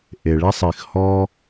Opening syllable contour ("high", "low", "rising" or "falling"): low